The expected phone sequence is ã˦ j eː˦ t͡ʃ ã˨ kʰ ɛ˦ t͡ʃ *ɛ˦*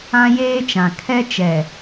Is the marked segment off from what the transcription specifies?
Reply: yes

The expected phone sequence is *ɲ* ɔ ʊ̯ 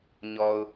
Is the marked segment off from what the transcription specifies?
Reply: no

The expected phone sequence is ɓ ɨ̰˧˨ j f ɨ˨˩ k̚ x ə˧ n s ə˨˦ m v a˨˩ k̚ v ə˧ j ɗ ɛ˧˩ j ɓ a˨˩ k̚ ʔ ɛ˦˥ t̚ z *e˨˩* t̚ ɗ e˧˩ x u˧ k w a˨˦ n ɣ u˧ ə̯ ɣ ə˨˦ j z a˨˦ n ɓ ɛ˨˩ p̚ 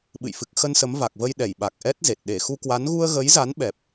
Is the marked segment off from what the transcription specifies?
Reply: no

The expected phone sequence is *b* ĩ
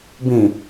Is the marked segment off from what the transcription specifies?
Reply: no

